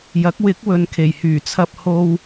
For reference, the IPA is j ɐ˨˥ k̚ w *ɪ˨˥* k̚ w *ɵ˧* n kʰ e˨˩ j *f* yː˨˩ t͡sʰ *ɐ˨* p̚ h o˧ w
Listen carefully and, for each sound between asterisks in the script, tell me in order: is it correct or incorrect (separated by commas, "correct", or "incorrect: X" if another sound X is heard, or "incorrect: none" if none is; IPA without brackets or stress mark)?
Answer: correct, incorrect: ɵ˨, incorrect: h, incorrect: ɐ˧